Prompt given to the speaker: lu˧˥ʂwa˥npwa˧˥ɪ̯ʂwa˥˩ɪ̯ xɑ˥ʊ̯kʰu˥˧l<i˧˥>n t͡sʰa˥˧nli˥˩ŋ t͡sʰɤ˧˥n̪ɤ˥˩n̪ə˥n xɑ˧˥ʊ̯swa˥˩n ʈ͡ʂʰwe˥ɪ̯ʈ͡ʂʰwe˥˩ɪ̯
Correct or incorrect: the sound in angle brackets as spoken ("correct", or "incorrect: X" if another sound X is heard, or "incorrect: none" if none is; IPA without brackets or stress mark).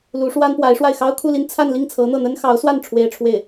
incorrect: i˥˧